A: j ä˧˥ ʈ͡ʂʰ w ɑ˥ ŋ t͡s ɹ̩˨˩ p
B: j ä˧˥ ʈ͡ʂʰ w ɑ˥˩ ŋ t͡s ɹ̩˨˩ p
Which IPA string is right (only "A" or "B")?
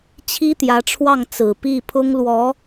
B